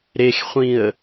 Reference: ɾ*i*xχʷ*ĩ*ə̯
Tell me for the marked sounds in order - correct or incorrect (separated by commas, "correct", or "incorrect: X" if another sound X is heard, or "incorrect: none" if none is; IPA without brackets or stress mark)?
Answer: incorrect: e, correct